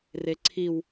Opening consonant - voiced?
yes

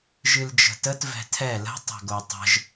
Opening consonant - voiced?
yes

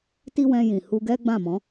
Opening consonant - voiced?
no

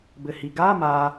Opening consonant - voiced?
yes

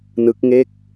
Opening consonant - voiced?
yes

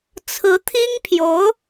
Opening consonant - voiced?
no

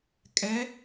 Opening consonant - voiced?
no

